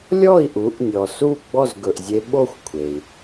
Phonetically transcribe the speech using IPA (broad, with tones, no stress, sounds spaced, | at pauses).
lʲ ɔ˥˩ i̯ ʔ u˩˥ ʔ nʲ ɔ˩ s u˥˩ ɡ͡b ɔ˥˩ z ɡ ɵ˩ ʔ zʲ e˧ ɓ o˥˩ xʷ kʷʰ e˩ i̯